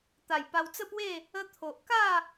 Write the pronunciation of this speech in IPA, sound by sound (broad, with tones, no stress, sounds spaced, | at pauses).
t̪ a˨˩ j p a˧ w t͡s ə˥˧ p w e˥˧ | ə˦ t̪ʰ o˨ ʔ k a˥˧